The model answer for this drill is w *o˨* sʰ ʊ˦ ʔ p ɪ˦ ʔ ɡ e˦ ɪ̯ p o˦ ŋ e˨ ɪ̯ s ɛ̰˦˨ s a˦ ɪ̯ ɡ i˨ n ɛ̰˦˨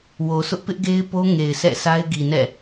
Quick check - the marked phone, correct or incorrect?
correct